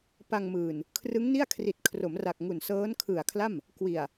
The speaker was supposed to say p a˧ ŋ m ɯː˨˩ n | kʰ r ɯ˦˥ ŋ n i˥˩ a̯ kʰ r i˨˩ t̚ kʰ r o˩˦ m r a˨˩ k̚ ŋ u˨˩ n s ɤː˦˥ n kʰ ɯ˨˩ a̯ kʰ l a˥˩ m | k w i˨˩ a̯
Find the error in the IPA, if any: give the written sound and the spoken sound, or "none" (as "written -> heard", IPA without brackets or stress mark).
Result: none